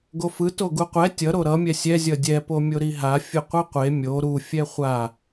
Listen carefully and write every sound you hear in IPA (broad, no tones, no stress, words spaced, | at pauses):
ɡofɯ toɡuqʷɛ tʲʌ ɾoɾʌ mʲɛsʲɛ zʲʌdʲɛ pomʲoɾiɦa fʲɯqʷɯqʷe mʲo ɾu fʲɛχʷa